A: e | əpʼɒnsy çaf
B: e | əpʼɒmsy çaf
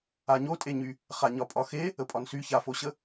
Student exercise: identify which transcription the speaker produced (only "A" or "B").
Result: A